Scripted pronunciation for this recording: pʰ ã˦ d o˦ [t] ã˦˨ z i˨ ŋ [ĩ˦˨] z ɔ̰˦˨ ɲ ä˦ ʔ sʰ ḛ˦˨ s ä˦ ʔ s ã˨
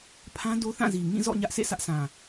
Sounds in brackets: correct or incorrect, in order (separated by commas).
incorrect, correct